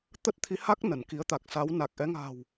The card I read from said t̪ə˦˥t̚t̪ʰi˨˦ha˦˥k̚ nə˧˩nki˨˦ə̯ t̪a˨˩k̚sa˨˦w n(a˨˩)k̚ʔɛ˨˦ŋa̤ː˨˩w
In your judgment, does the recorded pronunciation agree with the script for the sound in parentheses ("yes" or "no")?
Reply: yes